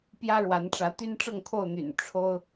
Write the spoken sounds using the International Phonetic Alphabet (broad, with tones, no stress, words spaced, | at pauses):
pjä˦ɻwa˨˦nʈ͡ʂä˨˦ t̪y˦nʈ͡ʂɤ˥˨ŋkʰo˥˨ʊ̯n̪y̰˨˩n ʈ͡ʂʰo˦ʊ̯